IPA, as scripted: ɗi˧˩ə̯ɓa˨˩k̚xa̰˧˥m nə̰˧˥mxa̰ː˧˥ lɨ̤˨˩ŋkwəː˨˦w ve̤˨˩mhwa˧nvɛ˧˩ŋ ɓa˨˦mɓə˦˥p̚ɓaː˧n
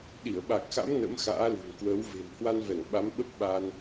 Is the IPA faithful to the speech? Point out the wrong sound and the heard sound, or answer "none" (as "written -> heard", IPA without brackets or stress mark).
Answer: none